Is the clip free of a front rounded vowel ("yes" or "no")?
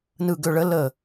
no